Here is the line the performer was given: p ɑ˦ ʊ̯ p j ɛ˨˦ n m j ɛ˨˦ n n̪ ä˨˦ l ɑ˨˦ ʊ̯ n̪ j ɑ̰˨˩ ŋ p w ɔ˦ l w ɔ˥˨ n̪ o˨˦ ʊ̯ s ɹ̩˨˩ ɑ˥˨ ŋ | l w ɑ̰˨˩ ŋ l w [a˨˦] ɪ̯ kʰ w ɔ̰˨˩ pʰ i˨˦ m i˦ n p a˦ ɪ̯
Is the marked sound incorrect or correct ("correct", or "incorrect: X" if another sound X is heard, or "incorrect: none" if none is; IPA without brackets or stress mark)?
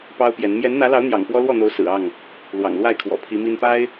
incorrect: a˥˨